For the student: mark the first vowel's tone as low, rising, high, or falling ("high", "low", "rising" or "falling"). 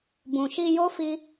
low